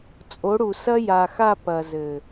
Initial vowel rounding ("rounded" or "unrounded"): rounded